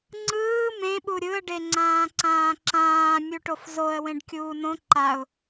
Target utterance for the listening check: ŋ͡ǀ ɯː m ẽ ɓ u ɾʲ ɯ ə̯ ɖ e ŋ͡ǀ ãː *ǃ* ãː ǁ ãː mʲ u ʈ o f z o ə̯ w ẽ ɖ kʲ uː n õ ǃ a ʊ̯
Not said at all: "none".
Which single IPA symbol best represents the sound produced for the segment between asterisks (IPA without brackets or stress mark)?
ǀ